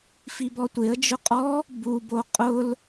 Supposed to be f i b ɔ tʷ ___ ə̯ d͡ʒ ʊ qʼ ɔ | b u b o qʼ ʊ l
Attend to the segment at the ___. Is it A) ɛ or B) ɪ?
B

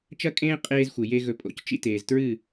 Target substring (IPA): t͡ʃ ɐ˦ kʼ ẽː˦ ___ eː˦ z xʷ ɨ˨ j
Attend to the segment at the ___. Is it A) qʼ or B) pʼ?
A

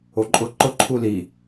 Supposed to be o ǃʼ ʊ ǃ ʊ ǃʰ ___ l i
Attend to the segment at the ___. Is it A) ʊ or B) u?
B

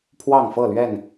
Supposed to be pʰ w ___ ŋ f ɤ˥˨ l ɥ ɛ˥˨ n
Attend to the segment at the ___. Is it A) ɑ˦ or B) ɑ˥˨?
B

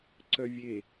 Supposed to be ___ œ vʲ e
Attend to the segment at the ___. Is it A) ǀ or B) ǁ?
A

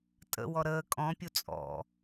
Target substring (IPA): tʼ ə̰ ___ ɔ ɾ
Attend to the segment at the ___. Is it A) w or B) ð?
A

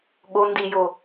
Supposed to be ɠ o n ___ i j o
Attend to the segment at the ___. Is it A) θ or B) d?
B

